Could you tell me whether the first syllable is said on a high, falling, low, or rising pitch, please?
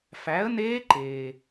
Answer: rising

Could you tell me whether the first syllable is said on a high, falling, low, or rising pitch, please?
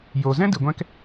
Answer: low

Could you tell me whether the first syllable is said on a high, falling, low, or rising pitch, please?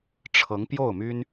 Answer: rising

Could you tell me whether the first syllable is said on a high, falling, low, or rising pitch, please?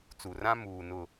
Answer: low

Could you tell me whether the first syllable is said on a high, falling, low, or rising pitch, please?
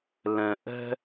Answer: low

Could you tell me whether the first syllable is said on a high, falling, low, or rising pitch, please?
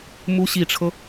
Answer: rising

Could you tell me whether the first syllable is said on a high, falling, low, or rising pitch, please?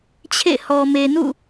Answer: falling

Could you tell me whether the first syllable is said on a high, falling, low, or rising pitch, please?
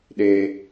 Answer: high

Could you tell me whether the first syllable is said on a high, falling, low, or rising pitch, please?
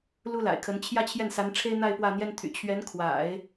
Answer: high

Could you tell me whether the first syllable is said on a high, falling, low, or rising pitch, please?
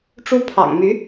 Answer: high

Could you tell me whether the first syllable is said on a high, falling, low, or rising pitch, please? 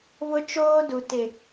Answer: high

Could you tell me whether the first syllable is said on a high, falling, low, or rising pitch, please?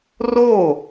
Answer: falling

